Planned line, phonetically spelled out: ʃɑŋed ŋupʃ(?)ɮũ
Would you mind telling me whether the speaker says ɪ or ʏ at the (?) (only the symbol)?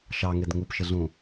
ɪ